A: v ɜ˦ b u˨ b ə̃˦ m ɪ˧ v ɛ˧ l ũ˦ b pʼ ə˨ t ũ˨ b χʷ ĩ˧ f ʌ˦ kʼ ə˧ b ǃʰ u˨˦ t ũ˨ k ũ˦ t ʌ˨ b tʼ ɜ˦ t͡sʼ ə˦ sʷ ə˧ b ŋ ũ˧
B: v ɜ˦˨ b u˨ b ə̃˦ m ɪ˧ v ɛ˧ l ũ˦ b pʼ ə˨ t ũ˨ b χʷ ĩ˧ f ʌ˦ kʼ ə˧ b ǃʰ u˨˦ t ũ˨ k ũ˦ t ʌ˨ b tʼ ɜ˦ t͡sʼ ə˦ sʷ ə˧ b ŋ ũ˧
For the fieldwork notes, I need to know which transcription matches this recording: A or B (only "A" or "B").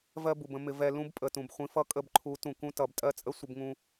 A